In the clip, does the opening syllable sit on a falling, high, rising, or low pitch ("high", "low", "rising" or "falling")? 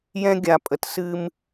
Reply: high